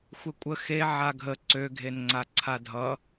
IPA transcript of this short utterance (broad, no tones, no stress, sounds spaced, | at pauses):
xʷ e kʷʼ ə x e ʕ a ɡʱ ə ǀ ø ɡʱ e n ŋ͡ǀ a ǀʰ a dʱ ʌ